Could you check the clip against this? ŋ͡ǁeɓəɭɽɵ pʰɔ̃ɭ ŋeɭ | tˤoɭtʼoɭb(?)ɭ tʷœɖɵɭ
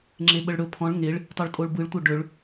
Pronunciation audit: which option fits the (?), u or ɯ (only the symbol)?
ɯ